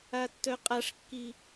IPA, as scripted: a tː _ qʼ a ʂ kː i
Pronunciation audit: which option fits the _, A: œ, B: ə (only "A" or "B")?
A